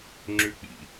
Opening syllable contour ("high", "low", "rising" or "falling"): high